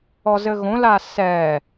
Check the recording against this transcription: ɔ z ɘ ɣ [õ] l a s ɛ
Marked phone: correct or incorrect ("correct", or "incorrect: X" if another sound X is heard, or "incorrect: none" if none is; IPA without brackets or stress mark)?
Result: correct